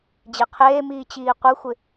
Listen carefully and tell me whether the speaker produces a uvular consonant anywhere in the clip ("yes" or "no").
yes